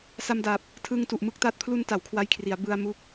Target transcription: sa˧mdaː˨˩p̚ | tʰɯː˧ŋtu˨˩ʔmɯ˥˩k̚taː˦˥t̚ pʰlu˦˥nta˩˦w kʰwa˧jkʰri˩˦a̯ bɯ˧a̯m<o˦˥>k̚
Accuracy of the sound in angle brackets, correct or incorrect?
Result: incorrect